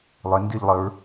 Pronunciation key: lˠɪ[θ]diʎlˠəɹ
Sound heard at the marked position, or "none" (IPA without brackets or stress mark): n